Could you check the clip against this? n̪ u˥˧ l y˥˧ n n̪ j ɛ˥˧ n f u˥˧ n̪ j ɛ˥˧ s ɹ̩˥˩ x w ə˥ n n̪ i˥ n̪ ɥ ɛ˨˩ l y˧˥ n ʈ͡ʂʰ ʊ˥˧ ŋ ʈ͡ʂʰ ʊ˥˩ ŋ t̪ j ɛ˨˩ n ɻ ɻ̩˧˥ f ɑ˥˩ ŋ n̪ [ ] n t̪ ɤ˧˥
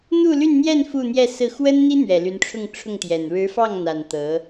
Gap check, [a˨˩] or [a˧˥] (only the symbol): a˨˩